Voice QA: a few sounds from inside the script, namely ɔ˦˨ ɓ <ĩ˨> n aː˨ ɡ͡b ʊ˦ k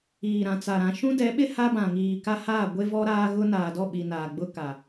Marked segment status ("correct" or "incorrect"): incorrect